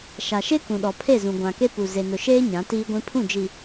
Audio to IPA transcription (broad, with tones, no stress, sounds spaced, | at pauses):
ʃ a˨ ʃ e˦ k ũ˨ ɗ ɔ˨ pʰ e˦˨ z ũ˨ ɡʷ ã˨ k e˦ p u˨ z e˨ n ʊ˨ ʃ eː˦ ɲ ã˨˦ t iː˦ ɡʷ ĩ˦ pʰ ũ˦˨ d͡ʒ i˨